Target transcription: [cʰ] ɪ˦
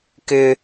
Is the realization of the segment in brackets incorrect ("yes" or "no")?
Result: yes